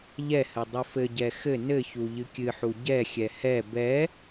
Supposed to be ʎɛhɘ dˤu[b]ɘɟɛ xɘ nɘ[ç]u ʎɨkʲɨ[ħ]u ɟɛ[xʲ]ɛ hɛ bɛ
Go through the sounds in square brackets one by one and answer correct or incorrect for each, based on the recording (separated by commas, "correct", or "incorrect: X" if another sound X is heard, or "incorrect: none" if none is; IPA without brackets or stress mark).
incorrect: f, correct, correct, correct